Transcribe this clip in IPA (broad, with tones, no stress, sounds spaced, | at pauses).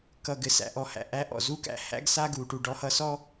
k ʌ˨ ɡ ɘ˨ s æ̰˩ ʔ ɔ˨ h æ̰˩ ʔ æ˥ ʔ ɔ̰˩ z u˦ k æ̰˨ h æ̰˥ ɡ s a˥ ɡ u˩ ʈ u˨ ɖ ɔ˦ h ʌ˦ s ɔ˥